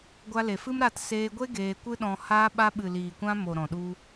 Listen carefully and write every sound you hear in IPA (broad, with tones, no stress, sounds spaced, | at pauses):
ɡʷ a˧ l e˨ f ɨ˦ m ɾ a˦˨ t s eː˧ ɡʷ e˦ ɡ eː˧ kʷ ɨ˦ ɗ ɔ̃˧ h aː˧ ɓ a˦ ɓ ɨ˨ l iː˨ kʷ ã˧ m o˨ ɾ ɔ̃˨ ɗ u˧